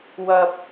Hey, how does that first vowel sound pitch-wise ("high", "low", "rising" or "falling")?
low